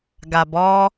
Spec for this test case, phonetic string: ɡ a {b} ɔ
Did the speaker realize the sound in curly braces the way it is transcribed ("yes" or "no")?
yes